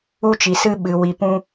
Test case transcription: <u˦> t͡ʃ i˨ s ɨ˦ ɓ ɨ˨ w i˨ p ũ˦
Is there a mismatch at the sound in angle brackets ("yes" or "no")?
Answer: no